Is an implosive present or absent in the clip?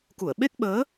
present